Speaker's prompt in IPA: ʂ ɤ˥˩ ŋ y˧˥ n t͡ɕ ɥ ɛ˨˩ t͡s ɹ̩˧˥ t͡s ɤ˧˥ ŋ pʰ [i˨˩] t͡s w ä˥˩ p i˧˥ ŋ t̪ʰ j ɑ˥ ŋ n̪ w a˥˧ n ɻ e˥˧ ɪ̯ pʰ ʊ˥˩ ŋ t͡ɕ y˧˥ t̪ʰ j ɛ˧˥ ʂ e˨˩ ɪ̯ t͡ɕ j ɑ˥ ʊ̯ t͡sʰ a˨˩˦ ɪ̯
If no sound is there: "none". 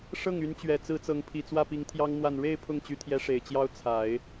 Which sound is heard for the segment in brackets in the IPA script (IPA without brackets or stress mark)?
i˨˩